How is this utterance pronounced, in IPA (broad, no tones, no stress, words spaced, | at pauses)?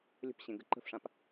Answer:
lʲə̤pɕẽɡə ǃə̤fʂãp